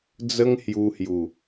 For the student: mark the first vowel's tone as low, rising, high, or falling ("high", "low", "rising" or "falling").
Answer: high